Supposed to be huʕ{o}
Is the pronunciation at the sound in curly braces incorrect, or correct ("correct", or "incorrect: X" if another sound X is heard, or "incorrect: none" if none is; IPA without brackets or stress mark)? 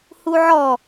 incorrect: ɔ